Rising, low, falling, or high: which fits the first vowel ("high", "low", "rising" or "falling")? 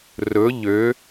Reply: rising